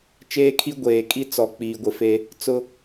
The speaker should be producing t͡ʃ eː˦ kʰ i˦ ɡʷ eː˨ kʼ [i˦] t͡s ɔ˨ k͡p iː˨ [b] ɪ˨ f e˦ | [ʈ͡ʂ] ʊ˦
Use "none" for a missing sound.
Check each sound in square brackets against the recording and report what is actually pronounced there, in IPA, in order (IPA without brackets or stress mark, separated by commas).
i˦, ɡʷ, t͡s